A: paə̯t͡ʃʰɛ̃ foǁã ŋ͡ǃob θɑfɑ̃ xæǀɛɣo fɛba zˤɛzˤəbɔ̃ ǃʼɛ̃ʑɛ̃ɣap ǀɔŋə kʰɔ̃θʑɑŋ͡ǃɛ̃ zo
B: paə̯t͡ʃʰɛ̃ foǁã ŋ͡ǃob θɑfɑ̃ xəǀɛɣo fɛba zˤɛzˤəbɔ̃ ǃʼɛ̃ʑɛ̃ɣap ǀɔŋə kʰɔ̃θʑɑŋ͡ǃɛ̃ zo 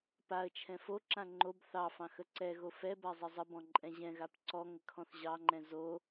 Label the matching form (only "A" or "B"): B